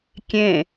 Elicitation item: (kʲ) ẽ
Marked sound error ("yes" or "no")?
no